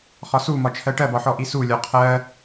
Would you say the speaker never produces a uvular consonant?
no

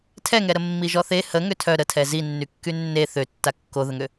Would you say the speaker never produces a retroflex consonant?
yes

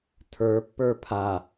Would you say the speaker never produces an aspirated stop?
no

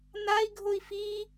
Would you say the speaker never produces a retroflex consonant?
yes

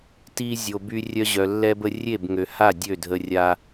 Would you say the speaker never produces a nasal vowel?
yes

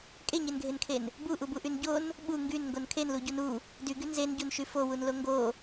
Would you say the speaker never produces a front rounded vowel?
no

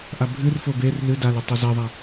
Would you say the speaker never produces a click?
yes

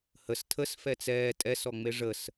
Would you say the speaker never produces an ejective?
no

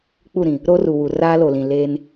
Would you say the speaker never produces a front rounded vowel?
yes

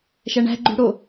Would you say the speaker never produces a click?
no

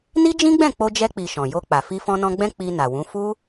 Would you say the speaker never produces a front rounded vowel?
yes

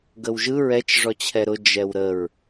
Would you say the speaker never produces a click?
yes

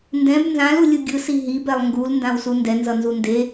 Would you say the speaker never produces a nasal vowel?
no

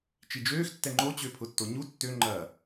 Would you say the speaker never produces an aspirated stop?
no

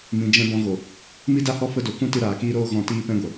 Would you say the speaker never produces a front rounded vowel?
yes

